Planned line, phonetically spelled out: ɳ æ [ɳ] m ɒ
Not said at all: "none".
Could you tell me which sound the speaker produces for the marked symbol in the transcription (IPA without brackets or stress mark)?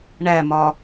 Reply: none